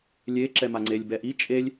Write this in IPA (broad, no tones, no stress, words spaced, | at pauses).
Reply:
lʲe ǁɛmaŋ͡ǀelʲ bɛʔi t͡ʃʼelʲ